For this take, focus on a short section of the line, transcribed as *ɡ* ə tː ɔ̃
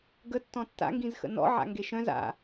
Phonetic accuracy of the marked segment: correct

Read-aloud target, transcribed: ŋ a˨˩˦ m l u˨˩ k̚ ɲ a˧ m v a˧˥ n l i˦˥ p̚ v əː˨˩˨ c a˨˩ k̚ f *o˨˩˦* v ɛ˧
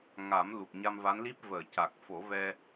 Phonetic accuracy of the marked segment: correct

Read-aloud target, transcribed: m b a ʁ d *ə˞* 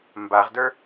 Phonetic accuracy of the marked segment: correct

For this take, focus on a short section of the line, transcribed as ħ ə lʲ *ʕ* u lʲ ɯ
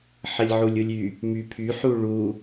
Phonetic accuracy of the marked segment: correct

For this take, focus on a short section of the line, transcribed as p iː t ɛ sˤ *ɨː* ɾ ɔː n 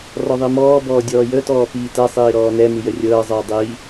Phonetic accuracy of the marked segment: incorrect: iː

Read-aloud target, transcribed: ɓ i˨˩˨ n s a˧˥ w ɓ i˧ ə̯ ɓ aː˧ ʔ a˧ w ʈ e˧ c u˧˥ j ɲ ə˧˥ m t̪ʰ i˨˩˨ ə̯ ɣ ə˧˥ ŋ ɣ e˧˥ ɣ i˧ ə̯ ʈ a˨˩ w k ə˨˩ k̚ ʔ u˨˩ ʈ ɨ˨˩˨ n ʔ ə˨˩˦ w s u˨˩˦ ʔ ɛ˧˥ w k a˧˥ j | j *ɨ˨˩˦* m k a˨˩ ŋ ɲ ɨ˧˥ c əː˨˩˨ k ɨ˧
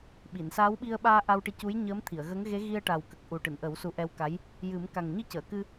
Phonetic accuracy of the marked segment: correct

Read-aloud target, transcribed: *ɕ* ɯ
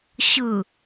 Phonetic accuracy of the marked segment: correct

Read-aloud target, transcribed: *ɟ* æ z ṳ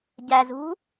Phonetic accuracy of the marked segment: correct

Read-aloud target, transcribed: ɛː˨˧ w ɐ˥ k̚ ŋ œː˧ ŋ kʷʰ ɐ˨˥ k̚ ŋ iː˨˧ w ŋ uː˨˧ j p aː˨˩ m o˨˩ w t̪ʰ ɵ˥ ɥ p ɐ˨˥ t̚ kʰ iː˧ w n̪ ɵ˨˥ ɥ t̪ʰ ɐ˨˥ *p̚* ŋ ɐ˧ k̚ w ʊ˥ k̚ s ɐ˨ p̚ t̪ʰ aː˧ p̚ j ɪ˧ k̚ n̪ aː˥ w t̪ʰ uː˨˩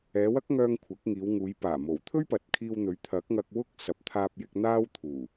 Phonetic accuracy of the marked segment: incorrect: k̚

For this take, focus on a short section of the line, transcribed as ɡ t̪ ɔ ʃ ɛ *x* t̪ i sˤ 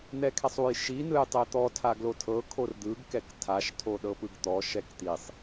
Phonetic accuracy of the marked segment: incorrect: k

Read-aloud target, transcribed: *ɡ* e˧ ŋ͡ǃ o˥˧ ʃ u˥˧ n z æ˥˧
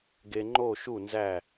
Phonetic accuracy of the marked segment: correct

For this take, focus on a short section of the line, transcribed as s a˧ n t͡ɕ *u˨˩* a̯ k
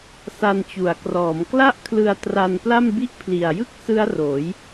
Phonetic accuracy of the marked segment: correct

